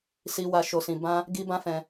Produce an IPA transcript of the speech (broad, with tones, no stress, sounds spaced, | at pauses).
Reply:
s i˦ w a˧ ʃ o˧ s ĩ˧ b ã˦ | ɡ i˦ b ã˦ f ɛ̃˧